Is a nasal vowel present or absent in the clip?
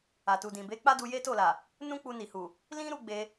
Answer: present